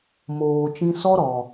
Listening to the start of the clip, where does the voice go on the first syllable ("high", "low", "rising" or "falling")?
low